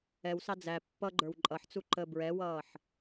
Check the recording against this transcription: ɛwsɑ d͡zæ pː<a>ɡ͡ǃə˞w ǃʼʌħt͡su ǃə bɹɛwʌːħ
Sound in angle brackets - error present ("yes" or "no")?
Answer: yes